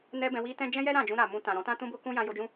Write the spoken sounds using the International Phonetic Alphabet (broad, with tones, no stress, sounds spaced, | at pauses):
n ɛ˦ b ɛ̃˧ w i˦ t ɛ̃˦ d͡ʒ ɛ̃˦ j ɛ˦ ɾ ã˦˨ d͡ʒ ũ˧ ɾ a˨ m ũ˧ t ã˨ ɾ ɔ̃˨˦ t ã˦ t ũ˦ b o˦ k ũ˦ j ã˧ j o˧ d͡ʒ ũ˦